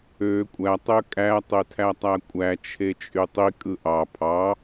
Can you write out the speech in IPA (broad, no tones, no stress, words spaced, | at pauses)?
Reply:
ø kʷʼæ tˤøkʼæ tˤetʰætˤækʷʼæ t͡ʃʰet͡ʃʼytˤi kʼɯʔɑ pʰɑ